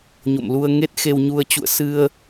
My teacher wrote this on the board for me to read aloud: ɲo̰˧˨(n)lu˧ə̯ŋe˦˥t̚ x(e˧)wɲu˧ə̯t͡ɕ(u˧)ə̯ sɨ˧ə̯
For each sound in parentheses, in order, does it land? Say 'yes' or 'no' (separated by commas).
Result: no, yes, no